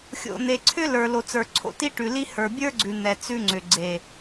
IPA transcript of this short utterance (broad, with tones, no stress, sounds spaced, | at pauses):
xʲ o̰˨ n̪ e˨ ǀʰ ʏ˦ l ə˞˨ l o˨ t͡s ə˞˨ ǀʰ o̰˨ t i˦ ʈ ʉ˨ l i˦ h ə˞˨ bʲ ə˞˦ ɡ͡ǀ ʉ˨ n̪ ɛ˨ t͡s ʉ˦ ŋ͡ǀ ʏ˨ ɡ͡ǀ e˨